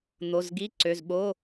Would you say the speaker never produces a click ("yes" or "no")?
no